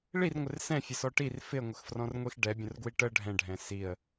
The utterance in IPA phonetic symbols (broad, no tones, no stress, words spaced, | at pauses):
ɭir ŋʷɪrsɛ̃fʲə sɔʈir fɪə̯ŋʷəx frɔ̃rŋʷixɖɛ bʲə̃rɡwiʈə ɖʱɛ̃ɖʱɛ̃ siə̯